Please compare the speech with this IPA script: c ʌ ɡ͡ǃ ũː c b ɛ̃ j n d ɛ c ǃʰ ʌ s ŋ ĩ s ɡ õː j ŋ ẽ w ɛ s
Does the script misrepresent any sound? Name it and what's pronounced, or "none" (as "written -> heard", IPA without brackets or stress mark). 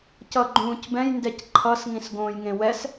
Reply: none